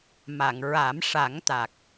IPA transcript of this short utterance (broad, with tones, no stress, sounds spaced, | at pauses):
m a˨˩˨ ŋ ɹ a˨˩˦ m ʂ a˨˩˦ ŋ t̪ a˨˩ k̚